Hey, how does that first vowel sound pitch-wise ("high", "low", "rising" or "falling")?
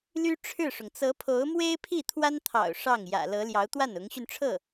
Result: high